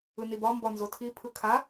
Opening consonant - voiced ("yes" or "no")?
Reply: yes